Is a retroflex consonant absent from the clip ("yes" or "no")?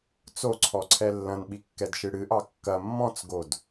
no